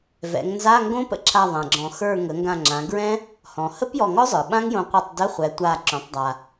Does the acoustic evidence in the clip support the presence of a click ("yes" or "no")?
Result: yes